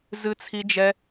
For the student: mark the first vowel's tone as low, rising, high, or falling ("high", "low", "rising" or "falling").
high